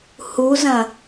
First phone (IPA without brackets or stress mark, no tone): h